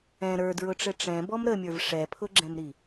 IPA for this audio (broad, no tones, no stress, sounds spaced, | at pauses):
ɛ̃ ɾ ə˞ d ɹ ʊ ʈ͡ʂ ɘ ʈ͡ʂ ɛ̃ b ɔ m ɾ ə mʲ ə˞ v ʂ ɛ pʰ ʊ ɡ͡ǁ ɛ̃ m ɾ i